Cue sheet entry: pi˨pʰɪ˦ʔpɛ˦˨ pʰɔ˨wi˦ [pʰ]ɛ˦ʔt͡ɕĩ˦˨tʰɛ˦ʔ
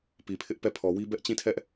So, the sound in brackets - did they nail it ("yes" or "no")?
no